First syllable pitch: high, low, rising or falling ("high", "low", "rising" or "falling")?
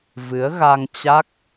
rising